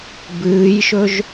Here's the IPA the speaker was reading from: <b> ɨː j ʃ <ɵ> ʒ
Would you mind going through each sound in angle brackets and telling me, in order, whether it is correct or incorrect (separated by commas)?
correct, correct